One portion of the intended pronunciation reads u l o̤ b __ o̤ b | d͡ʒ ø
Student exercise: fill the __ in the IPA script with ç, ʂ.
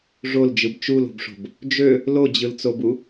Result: ʂ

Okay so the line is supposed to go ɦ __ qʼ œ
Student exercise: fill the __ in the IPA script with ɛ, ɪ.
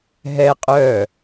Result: ɛ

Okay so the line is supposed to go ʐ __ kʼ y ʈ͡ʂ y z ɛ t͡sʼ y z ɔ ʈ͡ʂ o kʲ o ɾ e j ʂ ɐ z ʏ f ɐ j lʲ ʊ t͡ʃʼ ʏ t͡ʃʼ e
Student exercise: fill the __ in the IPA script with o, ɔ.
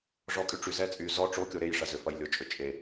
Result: ɔ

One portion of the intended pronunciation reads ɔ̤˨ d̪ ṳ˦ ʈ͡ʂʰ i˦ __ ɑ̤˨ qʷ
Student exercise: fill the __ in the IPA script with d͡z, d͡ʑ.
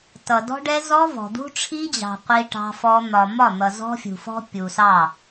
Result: d͡ʑ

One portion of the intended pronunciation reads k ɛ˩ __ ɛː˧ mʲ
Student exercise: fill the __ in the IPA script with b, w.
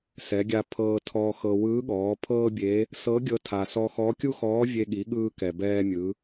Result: b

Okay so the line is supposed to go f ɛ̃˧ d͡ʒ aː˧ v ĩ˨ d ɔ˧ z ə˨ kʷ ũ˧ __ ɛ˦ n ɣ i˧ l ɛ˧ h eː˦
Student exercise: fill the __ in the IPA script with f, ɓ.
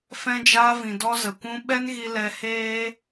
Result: ɓ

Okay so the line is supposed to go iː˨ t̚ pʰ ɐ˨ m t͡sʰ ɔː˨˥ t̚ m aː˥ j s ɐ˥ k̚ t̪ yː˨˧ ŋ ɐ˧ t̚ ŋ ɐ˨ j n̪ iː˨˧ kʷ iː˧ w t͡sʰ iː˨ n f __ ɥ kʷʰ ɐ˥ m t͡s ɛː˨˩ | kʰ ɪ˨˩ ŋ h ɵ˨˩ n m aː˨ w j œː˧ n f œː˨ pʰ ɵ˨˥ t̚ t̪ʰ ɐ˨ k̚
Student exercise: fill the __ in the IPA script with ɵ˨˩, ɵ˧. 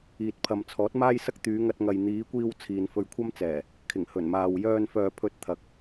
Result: ɵ˧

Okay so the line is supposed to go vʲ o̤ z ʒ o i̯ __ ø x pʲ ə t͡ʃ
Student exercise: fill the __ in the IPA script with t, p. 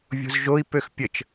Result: p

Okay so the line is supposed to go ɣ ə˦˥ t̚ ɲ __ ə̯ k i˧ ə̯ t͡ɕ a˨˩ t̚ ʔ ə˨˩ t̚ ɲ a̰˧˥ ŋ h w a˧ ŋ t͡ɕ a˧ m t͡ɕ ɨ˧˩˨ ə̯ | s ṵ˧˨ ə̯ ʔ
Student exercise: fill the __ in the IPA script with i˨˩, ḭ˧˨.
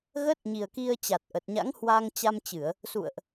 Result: i˨˩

